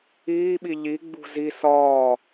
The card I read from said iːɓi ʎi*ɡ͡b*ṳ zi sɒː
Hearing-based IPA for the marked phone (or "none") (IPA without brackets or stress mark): ɡ͡b